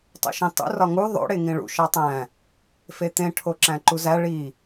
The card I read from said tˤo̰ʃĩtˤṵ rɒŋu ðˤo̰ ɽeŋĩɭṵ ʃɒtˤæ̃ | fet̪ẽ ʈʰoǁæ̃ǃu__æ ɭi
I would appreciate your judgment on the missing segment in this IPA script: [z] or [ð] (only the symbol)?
z